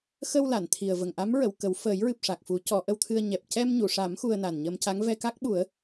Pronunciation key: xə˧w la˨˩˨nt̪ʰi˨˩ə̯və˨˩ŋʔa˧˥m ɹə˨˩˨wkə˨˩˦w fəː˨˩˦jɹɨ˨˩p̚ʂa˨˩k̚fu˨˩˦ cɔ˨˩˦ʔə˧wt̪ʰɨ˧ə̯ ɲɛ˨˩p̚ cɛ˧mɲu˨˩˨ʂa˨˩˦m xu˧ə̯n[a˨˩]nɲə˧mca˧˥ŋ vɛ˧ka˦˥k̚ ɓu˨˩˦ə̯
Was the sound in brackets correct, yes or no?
yes